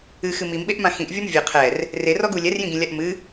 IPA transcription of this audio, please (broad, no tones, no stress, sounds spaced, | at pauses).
ɨ x ɨ m i m ɓ e ʔ m ã x ĩ ʔ vʲ ɔ m vʲ ɘ qʰ ɛ r | r e r ɔ ɡ u lʲ ɛ r j ĩ ɡ ĩ lʲ a ʔ m ɨ